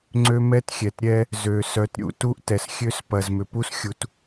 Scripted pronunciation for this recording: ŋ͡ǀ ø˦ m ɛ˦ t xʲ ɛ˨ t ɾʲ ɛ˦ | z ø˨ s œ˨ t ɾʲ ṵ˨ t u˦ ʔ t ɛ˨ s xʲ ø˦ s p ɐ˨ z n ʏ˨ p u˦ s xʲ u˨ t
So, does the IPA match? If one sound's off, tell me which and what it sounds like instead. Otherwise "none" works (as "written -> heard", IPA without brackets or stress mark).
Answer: n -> m